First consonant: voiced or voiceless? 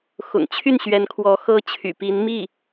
voiceless